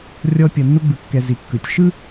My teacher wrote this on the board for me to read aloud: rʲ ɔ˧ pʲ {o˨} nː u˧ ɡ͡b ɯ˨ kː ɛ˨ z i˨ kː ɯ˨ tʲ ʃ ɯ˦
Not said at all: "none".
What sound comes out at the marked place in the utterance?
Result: ɤ˨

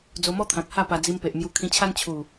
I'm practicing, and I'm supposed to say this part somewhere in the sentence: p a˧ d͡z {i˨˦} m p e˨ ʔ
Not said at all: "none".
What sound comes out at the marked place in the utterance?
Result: i˧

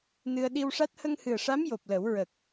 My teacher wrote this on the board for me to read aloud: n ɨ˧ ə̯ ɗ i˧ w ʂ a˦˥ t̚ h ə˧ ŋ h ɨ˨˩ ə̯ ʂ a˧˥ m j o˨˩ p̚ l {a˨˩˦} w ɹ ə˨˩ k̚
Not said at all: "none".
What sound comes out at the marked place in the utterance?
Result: ə˨˩˦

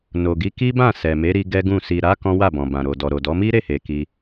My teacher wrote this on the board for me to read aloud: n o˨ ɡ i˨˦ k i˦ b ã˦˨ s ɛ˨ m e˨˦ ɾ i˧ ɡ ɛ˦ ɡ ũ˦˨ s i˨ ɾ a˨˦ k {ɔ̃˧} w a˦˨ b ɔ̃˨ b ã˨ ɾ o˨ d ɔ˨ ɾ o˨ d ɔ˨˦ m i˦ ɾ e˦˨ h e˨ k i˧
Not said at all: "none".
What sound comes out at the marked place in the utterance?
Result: ɔ̃˦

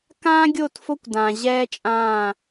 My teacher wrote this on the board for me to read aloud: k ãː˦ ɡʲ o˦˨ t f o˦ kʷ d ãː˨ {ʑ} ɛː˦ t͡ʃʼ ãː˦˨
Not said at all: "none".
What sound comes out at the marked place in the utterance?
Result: ʑ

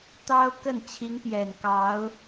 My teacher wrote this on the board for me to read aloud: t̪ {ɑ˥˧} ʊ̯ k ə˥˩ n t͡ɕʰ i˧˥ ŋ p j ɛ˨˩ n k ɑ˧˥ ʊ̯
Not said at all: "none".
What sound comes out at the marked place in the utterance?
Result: ɑ˥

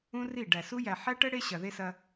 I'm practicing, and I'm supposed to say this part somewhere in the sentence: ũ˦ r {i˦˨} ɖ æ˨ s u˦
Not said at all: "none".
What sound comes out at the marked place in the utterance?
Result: i˦˨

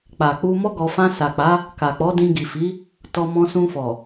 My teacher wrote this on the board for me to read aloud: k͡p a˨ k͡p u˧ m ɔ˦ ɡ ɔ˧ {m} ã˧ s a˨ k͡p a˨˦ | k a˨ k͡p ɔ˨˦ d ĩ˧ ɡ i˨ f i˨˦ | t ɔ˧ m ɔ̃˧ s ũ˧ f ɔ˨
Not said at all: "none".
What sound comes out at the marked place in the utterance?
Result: f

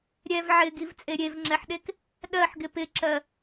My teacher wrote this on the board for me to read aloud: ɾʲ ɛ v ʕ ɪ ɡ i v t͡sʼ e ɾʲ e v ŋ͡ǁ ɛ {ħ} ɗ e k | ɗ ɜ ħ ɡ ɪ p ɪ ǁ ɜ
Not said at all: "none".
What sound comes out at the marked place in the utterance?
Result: ħ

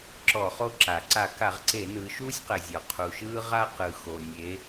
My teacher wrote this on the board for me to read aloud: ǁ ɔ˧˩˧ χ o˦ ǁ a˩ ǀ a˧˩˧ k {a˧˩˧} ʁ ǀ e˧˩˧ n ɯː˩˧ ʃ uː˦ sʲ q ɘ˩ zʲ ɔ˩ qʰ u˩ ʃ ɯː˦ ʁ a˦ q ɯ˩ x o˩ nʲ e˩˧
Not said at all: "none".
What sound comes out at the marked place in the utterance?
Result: a˧˩˧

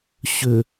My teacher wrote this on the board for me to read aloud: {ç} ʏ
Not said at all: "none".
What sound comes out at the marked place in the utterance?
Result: ɕ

